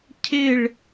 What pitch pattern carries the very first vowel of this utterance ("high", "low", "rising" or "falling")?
falling